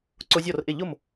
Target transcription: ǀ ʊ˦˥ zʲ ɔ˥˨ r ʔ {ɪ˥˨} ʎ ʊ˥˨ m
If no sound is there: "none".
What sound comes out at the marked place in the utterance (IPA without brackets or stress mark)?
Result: ɪ˥˨